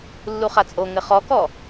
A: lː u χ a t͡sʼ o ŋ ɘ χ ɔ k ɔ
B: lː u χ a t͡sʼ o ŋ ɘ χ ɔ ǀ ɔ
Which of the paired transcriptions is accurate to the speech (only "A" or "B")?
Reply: A